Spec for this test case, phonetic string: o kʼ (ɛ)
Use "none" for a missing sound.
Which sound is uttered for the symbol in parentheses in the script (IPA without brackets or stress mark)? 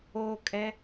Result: ɛ